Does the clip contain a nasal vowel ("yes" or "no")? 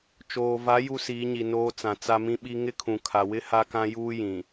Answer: yes